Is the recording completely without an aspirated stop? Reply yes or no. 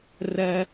yes